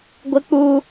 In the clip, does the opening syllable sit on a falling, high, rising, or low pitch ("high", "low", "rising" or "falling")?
high